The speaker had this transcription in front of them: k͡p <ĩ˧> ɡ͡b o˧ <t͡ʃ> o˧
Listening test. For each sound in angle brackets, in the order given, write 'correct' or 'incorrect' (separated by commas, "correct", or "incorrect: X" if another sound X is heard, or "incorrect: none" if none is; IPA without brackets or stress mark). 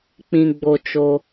correct, correct